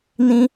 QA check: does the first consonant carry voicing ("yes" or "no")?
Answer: yes